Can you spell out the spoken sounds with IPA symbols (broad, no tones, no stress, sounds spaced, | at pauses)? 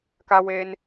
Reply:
k a w eː n